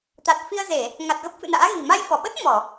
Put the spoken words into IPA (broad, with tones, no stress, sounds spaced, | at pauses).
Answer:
t̪ a˨˩ t̚ f i˧ ə̯ z e˧˩˨ | ŋ a˨˩ t̚ ɣ ə˦˥ p̚ f ɨ̰˧˨ n a̰ː˧˥ ɣ i̤˨˩ m a˧ j f ɔ˧˩ ɓ ə˦˥ t̚ m ɔ˧˩˨